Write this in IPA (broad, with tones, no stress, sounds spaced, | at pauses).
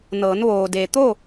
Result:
n ɤː˩˧ n ʋ oː˩ d e˩ t̪ o˥˨